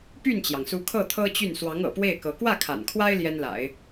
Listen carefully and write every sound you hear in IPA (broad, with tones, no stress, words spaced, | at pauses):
py˥˩nt͡ɕjɑ˩ŋsu˧˥kʰɤ˥˩ t̪ʰɤ˥t͡ɕy˥˩n swɑ˧˥ŋɤ̰˨˩pwe˥˩ɪ̯kɤ˧˥ kwä˥˩ kʰa̰˨˩nkʰwa˥ɪ̯ ljɛ˥nla̰˨˩˦ɪ̯